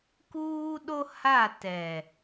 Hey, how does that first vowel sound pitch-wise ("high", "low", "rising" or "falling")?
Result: high